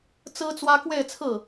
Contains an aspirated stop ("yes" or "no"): yes